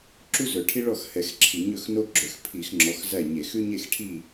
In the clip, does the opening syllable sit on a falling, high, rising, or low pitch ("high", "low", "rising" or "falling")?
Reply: high